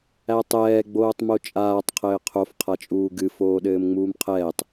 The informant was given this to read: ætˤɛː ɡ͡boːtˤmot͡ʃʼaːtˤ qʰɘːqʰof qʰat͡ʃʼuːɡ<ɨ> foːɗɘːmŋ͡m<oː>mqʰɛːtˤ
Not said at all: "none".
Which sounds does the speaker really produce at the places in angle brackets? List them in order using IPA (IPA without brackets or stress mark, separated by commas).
ɨ, uː